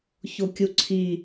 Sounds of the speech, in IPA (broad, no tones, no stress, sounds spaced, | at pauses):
ç o kʲ u ǀʰ i